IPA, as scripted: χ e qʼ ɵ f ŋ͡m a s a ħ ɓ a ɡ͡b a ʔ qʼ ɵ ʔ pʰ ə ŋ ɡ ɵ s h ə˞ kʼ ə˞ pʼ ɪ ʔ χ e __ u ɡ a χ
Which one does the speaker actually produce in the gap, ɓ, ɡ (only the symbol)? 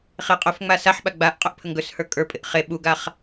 ɓ